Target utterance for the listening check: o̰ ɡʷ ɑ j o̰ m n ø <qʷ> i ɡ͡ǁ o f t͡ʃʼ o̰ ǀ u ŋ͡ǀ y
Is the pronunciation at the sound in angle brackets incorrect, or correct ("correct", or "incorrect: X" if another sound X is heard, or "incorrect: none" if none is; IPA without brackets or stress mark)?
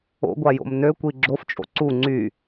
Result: incorrect: kʷ